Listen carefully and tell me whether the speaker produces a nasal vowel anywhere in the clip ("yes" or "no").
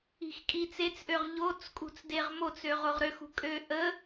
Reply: no